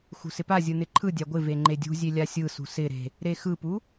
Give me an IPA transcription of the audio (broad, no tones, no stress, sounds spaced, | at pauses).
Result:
x ṳ s ɪ p a zʲ ɯ n ɪ ǃʰ ɯ dʲ a ɡʷ ɪ v e ŋ͡ǃ e dʲ ṳ zʲ e lʲ a sʲ ɯ s ṳ s ɪ ɾ e̤ | ɾ e x ɯ p u